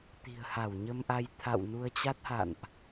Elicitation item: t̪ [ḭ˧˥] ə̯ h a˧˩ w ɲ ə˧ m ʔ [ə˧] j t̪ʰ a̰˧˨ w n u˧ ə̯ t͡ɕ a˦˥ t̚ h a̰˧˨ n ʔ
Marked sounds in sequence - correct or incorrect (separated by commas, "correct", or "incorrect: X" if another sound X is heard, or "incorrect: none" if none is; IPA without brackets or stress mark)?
incorrect: i̤˨˩, incorrect: a˧